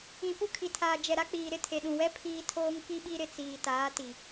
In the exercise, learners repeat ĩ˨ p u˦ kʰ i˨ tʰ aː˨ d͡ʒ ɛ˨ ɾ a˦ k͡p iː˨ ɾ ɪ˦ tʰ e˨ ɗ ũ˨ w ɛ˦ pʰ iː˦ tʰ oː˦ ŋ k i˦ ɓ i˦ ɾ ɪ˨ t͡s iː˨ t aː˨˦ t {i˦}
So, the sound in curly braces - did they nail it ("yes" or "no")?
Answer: no